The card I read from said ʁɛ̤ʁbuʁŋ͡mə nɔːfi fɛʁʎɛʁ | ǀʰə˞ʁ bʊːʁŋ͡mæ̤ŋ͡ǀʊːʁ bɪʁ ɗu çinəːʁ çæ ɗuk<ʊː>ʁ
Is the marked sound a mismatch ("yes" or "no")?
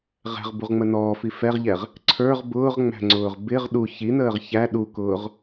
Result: no